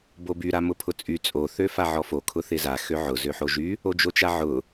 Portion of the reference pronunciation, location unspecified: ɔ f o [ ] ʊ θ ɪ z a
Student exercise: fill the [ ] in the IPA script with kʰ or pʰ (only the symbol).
kʰ